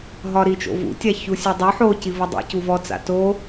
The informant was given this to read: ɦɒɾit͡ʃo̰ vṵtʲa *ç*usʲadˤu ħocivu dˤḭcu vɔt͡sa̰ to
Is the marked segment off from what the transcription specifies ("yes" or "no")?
no